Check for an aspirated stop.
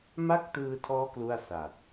present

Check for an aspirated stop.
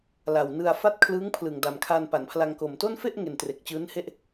present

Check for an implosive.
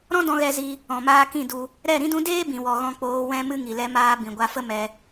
absent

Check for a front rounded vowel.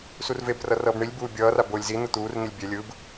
absent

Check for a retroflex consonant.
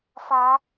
absent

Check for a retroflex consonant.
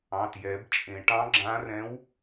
present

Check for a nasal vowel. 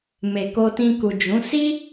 present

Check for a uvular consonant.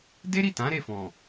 absent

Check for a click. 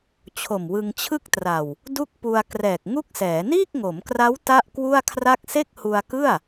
absent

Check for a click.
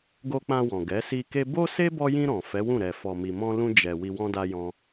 absent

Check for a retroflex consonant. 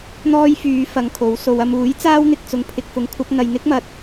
absent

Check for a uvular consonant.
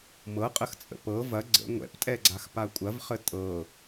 present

